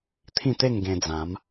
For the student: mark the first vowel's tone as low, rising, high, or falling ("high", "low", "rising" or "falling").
falling